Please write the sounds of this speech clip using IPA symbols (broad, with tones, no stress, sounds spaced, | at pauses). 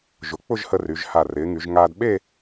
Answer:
ʒ ʊ˩˧ k͡p ʊ˥˧ ʒ h ə˧ r y˩˧ ʒ h a˧˩ r ɪː˩˧ ŋ y˩˧ ʒ ŋ aː˧ d ɓ e˥˧